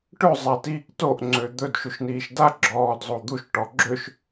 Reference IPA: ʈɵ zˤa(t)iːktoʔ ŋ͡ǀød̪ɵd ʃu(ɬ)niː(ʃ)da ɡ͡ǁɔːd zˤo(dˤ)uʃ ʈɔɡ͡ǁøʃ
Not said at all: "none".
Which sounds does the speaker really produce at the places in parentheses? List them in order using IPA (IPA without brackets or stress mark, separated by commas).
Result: t, ʃ, ʃ, d̪